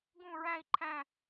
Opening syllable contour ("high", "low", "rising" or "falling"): falling